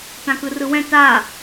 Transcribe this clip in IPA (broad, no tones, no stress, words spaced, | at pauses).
tãkɯrɯwɛ̃ ta